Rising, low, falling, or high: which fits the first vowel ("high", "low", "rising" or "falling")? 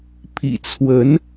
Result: low